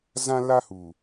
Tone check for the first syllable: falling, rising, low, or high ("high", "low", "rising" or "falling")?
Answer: high